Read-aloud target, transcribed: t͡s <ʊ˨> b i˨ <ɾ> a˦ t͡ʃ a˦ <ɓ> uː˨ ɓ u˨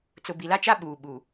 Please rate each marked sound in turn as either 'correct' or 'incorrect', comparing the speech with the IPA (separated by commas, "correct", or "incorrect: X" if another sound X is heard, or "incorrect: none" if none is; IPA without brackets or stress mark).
correct, incorrect: l, correct